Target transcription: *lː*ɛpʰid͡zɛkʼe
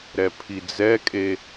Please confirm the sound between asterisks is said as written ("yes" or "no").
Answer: no